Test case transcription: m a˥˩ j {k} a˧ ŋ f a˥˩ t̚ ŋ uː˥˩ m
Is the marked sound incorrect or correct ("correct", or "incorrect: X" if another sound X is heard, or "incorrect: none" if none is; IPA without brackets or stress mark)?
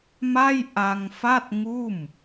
incorrect: ʔ